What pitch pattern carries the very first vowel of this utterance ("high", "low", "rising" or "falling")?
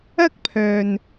high